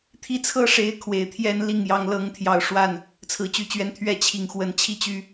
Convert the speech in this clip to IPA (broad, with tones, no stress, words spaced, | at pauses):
t̪ʰi˥t͡sʰɤ˥ʂe˧˥ɪ̯ kʰwe˨˩ɪ̯t̪ʰjɛ˥nli˥˩ŋ jɑ˧˥ŋlɤ˧˥ŋt̪ʰjɑ˨˩ʊ̯ʂwa˥˩n | t͡sʰɹ̩˥˩t͡ɕy˥t͡ɕɥɛ˥˧n t̪ʰɥɛ˥˩t͡ɕʰi˨˩ŋ xwə˧˥nt͡ɕʰi˥t͡ɕy˥